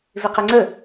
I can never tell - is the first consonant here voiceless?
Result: no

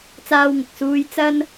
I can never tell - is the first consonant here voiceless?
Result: yes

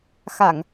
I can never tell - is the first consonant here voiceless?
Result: yes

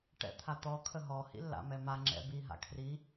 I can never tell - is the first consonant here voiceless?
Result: yes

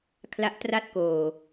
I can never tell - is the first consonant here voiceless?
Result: yes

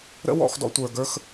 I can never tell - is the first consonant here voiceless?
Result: no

